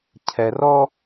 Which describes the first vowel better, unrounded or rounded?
unrounded